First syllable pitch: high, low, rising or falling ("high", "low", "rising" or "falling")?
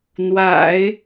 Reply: low